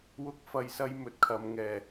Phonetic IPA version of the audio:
wʊ˧k̚fɐ˨jsɐ˧j mɵ˨˥t̚kʰɐ˨mŋɛː˨˩

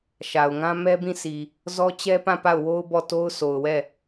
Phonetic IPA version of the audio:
ʃa˨ʊ̯ ŋã˦mɛ˦bĩ˦˨sʰi˨ | zɔ˦t͡ɕɛ˦pã˦˨ pa˦˨ʊ̯wo˦ʊ̯ bɔ˦˨ to˦ʊ̯so˨ʊ̯wɛ˦˨

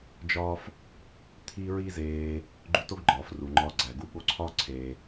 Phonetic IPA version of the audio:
d͡ʒɒː˦f | t̪ʰi˦ ɹi˦zeː˧ | ɡ͡ǃu˧to˦ɡ ɡ͡ǃɒː˨fru˨ŋ͡ǃɒː˧ ɡ͡ǀæ˨ɡu˧ ɠo˧ǀʰɒː˦ ǀʰe˧

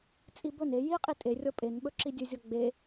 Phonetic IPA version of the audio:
t͡sʼibɵn e jiqʼi tʼerʲɔ pʼenɓɵ ǁidʲɵzʲɔ ɡ͡be

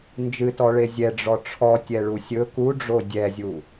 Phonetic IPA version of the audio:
nd͡ʒɨtɔɭe zʲɛɖ͡ʐɔ ʈ͡ʂʰɔtʲɛɭu sʲɵ kuɖ͡ʐo dʲɛzʲu

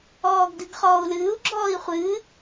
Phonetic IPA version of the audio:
ɔːɡdɨɡχɔːu̯lɨːu̯ ɡ͡ǁɔːi̯χʷɨː

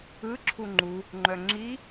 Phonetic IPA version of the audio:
ɯ ǁʰuŋ͡ǃu | ŋ͡ǃœŋ͡ǁi

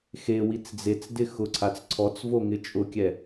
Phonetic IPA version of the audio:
xe wit͡sd͡zet͡sdɪ xʊǀʰat͡s ǀʰɔt͡svo ŋɪt͡ʃʼʊkʲɛ

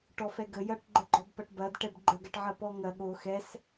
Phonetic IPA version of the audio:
ʈɔfɛɡə jɐʈɡ͡ǃəɡ͡ǃɔb pɐʈbɐd ʈɛbɡ͡ǃəɡɐʈʕɐ pɔŋɐ ɠo xɛs

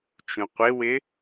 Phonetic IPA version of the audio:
t͡ʃũqʷɪwɪ

